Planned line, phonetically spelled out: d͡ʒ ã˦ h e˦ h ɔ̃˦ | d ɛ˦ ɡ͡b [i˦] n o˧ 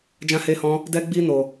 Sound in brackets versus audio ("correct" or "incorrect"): correct